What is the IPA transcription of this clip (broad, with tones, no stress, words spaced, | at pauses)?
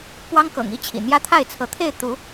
pwɑ˦ŋkɤ̰˨˩ŋ i˦t͡ɕʰḭ˨˩ n̪jä˦t̪ʰa˥˨ɪ̯t͡sʰɤ˨˦t̪ʰe˥˨ɪ̯ t̪u˨˦